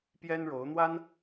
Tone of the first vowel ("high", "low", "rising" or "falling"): high